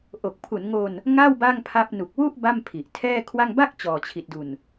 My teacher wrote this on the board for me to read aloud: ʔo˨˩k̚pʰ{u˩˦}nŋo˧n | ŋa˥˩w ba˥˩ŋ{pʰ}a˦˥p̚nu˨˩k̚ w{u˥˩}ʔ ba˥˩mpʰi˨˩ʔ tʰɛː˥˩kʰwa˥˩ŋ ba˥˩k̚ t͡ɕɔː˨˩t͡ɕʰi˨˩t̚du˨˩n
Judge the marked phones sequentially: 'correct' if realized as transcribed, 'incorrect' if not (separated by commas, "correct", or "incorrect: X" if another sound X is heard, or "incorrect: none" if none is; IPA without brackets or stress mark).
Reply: correct, correct, correct